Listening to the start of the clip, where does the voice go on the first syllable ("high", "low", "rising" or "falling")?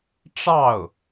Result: falling